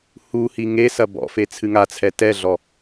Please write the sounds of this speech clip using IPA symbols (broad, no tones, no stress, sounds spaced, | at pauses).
h u h i ŋ e s ɐ b ɔ̰ f e t͡sʰ ɨ ŋ a t͡sʰ ɛ t ɛ ɮ ɔ